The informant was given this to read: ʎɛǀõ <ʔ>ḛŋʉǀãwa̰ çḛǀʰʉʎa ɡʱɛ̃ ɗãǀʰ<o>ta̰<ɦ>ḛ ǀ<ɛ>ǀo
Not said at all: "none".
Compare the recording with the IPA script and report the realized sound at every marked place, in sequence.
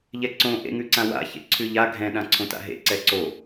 ʔ, õ, ɦ, ɛ

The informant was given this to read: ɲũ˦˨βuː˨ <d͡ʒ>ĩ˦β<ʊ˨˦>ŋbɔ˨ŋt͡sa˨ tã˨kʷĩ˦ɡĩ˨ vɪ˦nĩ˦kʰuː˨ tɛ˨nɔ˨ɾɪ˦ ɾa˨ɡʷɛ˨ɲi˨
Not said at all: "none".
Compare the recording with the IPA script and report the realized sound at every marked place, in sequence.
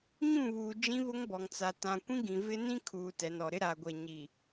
d͡ʒ, ʊ˦

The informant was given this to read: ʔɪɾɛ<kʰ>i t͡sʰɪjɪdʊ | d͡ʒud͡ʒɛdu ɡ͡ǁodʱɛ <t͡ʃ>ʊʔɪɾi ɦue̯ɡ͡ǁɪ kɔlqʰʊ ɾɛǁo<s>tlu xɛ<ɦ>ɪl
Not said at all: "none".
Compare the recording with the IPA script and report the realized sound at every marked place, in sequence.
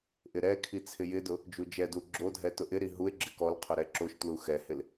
kʰ, t, ʃ, h

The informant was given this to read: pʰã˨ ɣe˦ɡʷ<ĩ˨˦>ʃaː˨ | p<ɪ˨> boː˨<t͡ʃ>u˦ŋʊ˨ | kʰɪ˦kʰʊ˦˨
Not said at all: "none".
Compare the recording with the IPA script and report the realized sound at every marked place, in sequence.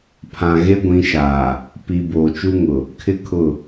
ĩ˨˦, i˨, t͡ʃ

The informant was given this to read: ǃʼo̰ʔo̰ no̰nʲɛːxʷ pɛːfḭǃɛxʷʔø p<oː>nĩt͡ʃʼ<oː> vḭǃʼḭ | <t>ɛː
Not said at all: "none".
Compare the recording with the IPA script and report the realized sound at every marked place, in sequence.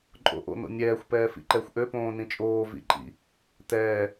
õː, oː, t

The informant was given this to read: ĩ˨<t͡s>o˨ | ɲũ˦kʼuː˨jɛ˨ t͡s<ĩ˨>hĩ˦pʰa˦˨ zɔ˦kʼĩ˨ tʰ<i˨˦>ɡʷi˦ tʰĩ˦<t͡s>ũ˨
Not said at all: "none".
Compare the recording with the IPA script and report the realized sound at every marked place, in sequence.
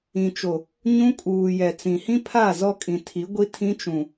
t͡ʃ, ĩ˨, i˨˦, t͡ʃ

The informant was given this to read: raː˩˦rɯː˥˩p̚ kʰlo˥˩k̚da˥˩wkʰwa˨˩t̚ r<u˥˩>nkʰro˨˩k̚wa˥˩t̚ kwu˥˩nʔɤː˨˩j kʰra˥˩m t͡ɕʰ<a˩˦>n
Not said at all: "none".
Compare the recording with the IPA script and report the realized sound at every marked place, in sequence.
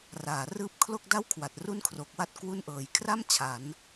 u˥˩, a˩˦

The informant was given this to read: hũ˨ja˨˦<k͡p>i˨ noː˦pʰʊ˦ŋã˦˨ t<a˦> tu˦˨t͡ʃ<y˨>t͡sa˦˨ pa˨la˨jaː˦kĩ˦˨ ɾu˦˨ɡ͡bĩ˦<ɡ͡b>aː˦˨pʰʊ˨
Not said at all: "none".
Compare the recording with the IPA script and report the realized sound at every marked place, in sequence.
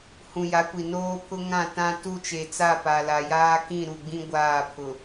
kʷ, ã˦, e˨, ɡʷ

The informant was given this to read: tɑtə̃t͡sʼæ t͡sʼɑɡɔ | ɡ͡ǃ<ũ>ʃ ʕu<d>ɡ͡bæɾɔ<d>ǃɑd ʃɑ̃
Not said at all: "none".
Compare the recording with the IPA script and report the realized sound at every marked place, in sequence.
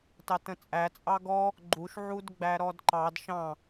u, d, d

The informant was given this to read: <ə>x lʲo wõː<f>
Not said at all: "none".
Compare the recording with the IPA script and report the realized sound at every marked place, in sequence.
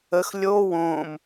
ə, m

